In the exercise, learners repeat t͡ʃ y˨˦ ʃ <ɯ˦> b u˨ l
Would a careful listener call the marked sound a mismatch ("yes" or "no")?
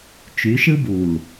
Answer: no